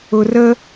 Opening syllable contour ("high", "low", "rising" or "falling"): low